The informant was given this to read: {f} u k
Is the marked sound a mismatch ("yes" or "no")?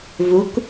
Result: yes